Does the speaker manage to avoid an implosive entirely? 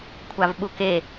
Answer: no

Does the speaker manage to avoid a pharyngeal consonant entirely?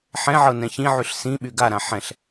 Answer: no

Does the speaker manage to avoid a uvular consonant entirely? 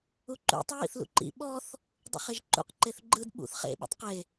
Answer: no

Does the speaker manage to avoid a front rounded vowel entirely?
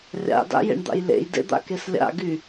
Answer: no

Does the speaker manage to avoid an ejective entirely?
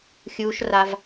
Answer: yes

